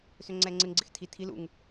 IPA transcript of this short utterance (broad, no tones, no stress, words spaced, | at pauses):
søŋ͡ǀɛːŋ͡ǀɪŋɡ͡ǀɪx tʰi tʰil ṵŋ